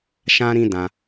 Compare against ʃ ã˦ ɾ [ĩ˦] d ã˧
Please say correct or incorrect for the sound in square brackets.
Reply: correct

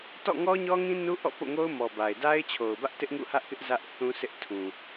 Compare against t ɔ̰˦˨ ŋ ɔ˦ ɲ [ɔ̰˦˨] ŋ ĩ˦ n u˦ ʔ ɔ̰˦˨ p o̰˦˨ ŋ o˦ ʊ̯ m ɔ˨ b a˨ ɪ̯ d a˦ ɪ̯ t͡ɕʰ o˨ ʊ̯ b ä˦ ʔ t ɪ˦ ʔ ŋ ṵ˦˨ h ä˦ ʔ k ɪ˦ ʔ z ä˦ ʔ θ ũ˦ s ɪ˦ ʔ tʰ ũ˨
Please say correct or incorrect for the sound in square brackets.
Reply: incorrect: ɔ˦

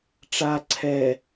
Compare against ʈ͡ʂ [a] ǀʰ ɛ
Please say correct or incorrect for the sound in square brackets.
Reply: correct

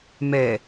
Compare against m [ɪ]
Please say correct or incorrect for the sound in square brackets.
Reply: incorrect: ɛ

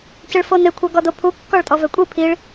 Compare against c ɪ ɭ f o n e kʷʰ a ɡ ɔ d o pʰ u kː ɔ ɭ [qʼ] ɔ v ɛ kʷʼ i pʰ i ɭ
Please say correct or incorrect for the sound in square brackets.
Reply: incorrect: tʼ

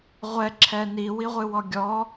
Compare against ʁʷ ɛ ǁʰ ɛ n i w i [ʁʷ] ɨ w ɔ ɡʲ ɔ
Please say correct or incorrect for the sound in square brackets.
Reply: correct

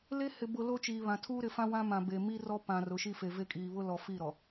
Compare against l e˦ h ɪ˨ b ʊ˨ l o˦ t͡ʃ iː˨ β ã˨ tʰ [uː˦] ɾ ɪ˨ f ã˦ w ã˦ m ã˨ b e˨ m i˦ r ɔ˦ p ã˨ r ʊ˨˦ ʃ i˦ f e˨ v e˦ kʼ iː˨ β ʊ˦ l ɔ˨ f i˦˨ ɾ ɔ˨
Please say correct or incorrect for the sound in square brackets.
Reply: correct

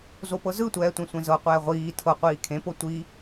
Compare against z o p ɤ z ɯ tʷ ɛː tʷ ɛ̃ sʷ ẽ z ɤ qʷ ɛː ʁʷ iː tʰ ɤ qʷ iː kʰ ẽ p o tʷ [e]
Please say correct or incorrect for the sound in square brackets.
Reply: incorrect: i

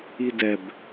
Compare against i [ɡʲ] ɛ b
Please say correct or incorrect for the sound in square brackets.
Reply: incorrect: d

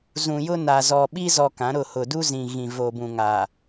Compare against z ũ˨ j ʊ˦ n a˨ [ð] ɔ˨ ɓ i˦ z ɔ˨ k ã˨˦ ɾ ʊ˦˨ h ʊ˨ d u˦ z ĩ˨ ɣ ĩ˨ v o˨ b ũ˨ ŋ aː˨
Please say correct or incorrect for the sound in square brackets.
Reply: incorrect: z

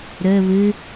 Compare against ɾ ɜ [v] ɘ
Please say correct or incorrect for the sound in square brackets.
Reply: incorrect: β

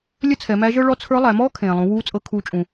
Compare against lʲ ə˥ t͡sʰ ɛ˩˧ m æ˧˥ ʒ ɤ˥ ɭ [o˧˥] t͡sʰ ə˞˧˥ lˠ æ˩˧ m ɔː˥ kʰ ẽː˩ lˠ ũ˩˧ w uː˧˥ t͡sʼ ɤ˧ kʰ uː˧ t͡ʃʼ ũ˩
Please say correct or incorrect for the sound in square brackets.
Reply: incorrect: ɔ˧˥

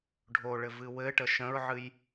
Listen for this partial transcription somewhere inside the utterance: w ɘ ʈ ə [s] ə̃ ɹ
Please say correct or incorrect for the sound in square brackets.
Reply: incorrect: ʃ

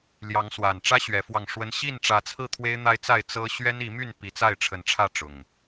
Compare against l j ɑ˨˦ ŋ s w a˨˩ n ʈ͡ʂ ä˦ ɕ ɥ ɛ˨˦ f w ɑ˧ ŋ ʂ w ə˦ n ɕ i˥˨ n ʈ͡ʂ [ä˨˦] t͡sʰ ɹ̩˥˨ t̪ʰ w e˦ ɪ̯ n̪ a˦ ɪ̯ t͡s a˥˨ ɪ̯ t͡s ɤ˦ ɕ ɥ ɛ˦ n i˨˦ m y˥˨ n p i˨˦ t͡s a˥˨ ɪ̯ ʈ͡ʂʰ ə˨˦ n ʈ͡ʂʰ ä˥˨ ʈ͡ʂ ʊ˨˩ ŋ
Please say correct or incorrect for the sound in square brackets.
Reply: correct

